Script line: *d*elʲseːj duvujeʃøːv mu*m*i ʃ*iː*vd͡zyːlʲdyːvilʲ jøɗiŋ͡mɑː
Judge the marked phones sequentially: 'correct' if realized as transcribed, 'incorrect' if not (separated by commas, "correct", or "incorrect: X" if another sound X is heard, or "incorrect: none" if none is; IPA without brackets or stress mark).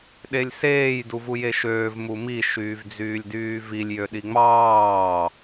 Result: incorrect: ɗ, correct, incorrect: yː